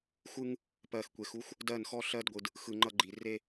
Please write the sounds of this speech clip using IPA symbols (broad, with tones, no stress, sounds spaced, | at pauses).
xʷ ɯ˦ ŋ | p ɜ˨ x kʷ e˨ x u˦ xʷ | d ɜ˦˨ n x ɔ˦ ɬ ɜ˦ d ɡʷ ɯ˨ d | x ɯ˨ ŋ͡ǃ ʌ˦ ɡ͡ǃ i˨ r e˦